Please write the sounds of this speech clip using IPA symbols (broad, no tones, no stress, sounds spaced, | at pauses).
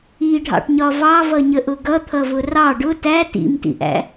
i ɖʱ ɑ̰ ʈ ɲ ɒ v ɑ v ʌ ɲ ə ʔ ʊ ɡ ʌ t̪ʰ ʌ v ʊ r ɑ ɖ ʊ t æ t ḭ m t ḭ ʔ æ̰